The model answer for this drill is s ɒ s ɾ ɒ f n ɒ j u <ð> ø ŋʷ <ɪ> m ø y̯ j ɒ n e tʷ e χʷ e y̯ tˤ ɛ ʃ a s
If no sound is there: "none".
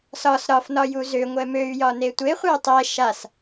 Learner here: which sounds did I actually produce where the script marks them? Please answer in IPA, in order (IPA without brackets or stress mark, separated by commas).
z, ɛ